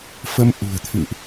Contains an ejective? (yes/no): no